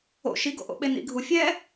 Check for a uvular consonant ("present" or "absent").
absent